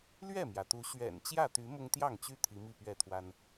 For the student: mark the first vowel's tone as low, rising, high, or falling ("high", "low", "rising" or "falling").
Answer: falling